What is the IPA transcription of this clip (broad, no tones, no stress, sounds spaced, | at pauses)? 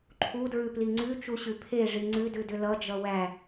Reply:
ǃʰ u d ɹ ʉ p l i ŋ͡ǀ ʉ t͡ʃ u ɕ ʉ pʰ e ʐ i ŋ͡ǀ ʉ d ʉ d ʏ l ʌ d͡ʒ ʌ w æ